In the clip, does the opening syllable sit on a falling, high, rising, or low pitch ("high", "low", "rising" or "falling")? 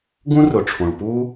high